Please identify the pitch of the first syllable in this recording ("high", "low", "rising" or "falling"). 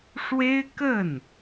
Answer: high